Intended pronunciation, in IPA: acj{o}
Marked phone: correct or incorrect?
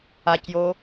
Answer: correct